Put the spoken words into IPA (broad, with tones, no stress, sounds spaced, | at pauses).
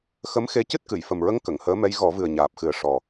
x ə˧˥ m x e˧ c ɨ˦˥ t̚ k ɨ˨˩˨ j f ə˨˩ m ɹ ə˧ ŋ k ə˨˩˨ ŋ h əː˧˥ m ɛ˧˥ j ɣ ɔ˨˩˦ v ɨ˨˩ ə̯ ɲ aː˨˩ p̚ x ɨ˨˩ ə̯ ʂ ɔ˨˩